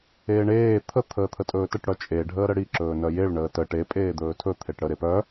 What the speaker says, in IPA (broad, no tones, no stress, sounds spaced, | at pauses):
eː ɳ eː t̪ʰ ə t̪ʰ əː t̪ʰ ə tʼ ɵː t ə ʈ ɽ œ t͡ʃʼ e ɖʱ əː ɾ ə ɽ i ǁ ɵː n œ j e ɭ ɳ əː t ə ʈ e pʼ eː d̪ ɵː tʰ ɵ t̪ʰ e ʈ ɽ ə ɾ e p œ